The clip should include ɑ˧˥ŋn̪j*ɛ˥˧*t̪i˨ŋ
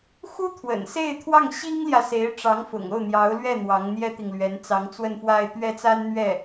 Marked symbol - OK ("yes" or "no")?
no